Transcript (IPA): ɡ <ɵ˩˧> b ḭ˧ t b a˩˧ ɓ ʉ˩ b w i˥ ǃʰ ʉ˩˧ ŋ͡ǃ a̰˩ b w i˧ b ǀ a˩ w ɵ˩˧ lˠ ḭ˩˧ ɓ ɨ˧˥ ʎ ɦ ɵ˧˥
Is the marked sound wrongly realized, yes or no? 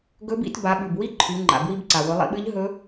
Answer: yes